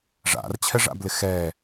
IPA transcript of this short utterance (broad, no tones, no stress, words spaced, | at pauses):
ʐa̰rt͡ɕʰɛʐa̰blɪ xɛ